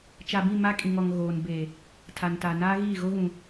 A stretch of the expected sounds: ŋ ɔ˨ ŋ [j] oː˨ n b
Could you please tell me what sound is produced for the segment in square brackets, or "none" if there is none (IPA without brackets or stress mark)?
ɣ